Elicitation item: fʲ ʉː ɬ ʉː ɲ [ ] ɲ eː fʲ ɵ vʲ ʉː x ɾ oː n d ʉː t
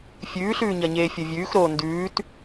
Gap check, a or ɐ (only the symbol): ɐ